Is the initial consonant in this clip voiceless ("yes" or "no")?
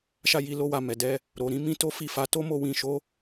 yes